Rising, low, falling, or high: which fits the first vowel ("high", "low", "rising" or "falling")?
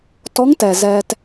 rising